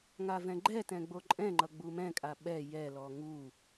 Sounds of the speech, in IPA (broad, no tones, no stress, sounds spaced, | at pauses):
ŋ a v ɛ̃ ɡ͡ǃ ɛ t ɛ̃ ɡ͡b o ǃʼ ɛ̃ ŋ͡ǃ ʌ ɡ͡b u m ɛ̃ kʼ a ɓ ɛ j ɛ l ɔ ŋ u